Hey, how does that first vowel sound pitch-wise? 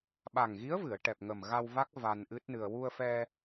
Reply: low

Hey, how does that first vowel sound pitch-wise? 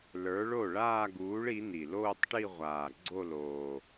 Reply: rising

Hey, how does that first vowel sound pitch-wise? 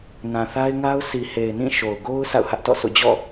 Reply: low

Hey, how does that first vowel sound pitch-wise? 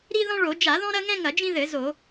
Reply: high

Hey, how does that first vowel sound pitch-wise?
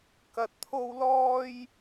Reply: low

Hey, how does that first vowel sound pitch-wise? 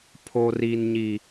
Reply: high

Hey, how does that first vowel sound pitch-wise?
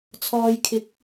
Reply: low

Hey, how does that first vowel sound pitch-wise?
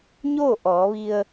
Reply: falling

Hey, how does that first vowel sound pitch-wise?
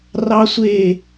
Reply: low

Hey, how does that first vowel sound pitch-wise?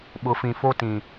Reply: rising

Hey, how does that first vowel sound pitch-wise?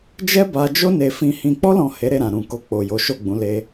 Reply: high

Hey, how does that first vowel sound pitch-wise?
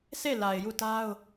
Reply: falling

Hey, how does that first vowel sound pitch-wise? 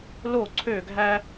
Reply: falling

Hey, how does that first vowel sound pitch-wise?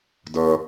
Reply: low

